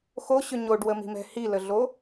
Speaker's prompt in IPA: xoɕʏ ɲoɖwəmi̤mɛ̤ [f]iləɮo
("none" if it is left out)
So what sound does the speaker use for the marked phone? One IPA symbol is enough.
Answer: h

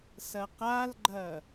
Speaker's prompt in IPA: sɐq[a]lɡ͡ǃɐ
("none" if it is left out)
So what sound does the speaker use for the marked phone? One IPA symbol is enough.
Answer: a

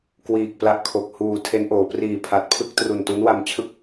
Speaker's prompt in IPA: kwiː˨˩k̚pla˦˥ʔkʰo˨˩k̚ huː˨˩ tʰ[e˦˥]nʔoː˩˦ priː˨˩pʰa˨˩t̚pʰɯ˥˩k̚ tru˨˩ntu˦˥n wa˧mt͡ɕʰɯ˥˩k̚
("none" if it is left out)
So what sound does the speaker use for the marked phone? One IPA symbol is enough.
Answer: e˦˥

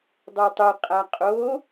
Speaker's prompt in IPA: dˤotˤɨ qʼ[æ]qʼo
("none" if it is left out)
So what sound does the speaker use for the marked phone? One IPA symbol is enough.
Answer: a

